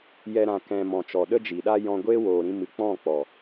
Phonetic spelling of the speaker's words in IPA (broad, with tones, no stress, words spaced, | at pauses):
jɛ˧ ɾã˨ kɛ̃˨ mɔ̃˨t͡ʃɔ˨ ɗə˦d͡ʒi˨ɗa˦ jɔ̃˧ɡʷeː˦woː˨ɾĩ˧ mɨ˨k͡pɔ̃˦˨ k͡pɔ˨